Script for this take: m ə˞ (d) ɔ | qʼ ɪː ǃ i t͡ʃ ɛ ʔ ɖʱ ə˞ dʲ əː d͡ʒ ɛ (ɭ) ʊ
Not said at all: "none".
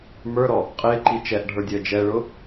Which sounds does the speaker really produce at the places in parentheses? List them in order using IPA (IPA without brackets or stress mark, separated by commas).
ɾ, ɭ